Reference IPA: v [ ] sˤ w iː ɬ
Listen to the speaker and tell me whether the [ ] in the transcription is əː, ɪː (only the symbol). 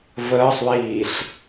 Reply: əː